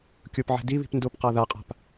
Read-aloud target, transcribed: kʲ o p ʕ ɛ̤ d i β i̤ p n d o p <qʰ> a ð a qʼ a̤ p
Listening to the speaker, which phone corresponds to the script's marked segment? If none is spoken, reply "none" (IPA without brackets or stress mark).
q